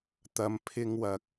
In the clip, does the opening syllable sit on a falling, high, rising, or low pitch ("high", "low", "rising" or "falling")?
low